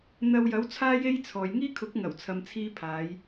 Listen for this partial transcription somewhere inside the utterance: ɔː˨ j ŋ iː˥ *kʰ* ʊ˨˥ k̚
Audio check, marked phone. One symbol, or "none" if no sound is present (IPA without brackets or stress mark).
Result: kʰ